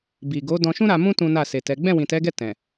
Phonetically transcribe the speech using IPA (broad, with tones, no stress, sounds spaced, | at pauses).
b i˨ ɡ o˨˦ d ɔ̃˧ ʃ ũ˦ ɾ a˧ m ũ˦ t ũ˦ n a˦˨ s e˨ t ɛ˨˦ ɡ͡b ɛ̃˦˨ w ĩ˨ t ɛ˨˦ ɡ ɛ˦˨ t ɛ̃˨